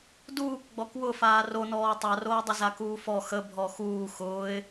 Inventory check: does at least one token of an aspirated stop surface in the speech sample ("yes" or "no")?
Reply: no